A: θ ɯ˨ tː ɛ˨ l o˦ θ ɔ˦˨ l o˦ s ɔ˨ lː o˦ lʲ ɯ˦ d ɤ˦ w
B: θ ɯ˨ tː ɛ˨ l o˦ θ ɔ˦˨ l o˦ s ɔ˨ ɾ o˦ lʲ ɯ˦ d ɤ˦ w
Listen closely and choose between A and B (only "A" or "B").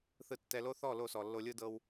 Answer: A